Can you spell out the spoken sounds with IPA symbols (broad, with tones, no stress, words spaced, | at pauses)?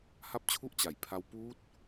ha˥˩p̚t͡ɕʰu˥˩ʔ t͡ɕa˨˩j pʰa˦˥w puː˦˥t̚